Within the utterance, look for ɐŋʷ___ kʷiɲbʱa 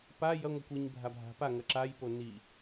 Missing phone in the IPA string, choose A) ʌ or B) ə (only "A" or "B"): B